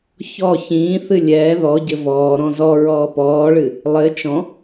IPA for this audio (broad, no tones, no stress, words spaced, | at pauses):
çɔ çĩːθɨ lʲɛː ðɔɟɘ vɔːɾɔ̃ zɔ ɹɔːpɔːɭɨ | lˠɘ t͡ʃɔ̃